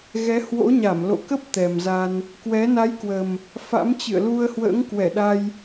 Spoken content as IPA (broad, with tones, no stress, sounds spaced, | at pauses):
ɣ ɛ˨˦ h w o̰˧˥ ɲ a˧˩ m l o̰˧˨ k ə˦˥ p̚ t̪ ɛ˨˩ m z a˧ n | k w ɛ˨˦ n a˨˦ j k w ə˨˩ m | f a̰˧˥ m t͡ɕ ɨ̰˧˨ ə̯ l u˧ ə̯ h w ə̰ː˧˥ ŋ k w ɛ˧˩ ɗ a˧ j